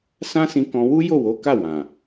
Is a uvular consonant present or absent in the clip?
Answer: absent